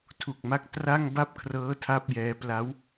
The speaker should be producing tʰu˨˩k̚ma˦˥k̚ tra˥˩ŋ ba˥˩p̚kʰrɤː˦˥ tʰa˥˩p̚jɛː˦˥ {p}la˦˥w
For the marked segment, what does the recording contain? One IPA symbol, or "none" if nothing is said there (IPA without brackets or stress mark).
p